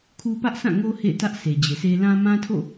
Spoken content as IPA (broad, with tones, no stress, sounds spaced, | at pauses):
kʰ u˦ p ä˦ ʔ sʰ ã˦˨ ŋ o˦ h ḛ˦˨ ɪ̯ t ä˦ ʔ sʰ e˨ d͡ʑ e˨ sʰ e˦ l ã˦ m ã˦ tʰ o̰˦˨